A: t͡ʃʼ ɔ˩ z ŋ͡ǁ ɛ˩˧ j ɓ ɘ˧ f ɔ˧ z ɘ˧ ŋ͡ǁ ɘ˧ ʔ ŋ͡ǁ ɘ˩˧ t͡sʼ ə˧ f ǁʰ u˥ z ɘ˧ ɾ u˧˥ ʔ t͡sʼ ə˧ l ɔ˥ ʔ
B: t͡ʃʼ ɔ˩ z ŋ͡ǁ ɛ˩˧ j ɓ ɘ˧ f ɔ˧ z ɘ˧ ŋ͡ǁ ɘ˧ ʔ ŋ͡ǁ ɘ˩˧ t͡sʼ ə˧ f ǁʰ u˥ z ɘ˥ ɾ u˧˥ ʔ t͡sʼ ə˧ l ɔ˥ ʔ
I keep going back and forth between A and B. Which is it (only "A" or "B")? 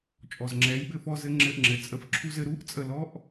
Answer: B